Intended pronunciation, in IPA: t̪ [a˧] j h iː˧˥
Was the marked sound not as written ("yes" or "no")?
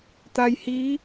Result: no